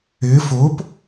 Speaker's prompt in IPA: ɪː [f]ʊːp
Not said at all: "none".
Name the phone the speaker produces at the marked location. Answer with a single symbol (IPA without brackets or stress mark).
f